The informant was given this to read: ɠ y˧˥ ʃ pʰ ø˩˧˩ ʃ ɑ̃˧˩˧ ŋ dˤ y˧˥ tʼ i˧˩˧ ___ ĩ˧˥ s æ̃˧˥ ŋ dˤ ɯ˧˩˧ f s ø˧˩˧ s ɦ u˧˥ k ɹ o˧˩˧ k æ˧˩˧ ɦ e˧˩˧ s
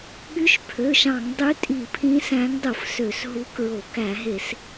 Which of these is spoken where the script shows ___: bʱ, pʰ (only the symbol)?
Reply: pʰ